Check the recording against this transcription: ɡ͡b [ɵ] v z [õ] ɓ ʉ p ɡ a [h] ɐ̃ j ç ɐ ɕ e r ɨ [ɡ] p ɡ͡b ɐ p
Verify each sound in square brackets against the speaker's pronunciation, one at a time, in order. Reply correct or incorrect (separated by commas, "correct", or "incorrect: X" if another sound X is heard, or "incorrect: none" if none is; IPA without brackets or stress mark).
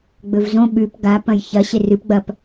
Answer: correct, correct, incorrect: p, incorrect: none